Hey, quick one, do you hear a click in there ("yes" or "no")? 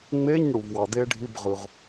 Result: no